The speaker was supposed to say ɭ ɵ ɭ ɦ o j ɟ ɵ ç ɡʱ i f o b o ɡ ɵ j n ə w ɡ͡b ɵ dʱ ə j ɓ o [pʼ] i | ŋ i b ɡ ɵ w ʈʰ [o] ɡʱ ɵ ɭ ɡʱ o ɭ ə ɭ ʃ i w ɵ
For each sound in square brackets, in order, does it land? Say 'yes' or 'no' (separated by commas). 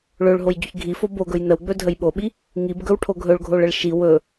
no, yes